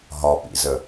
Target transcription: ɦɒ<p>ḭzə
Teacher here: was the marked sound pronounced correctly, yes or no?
yes